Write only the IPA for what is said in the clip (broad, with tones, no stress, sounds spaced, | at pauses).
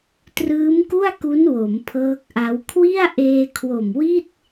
t r ɯː˦˥ m k u˥˩ a̯ k u˦˥ n w o˩˦ m pʰ ɤː˦˥ k̚ ʔ a˦˥ w kʰ w i˥˩ a̯ ʔ eː˧ kʰ w o˨˩ m w i˥˩ t̚